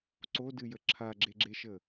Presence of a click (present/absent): present